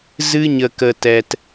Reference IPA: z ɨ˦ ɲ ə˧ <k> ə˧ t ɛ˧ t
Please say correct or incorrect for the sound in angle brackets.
correct